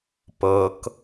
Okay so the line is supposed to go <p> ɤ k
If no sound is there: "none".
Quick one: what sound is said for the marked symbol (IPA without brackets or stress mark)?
p